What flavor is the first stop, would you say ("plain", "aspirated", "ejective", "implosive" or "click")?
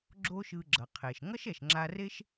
click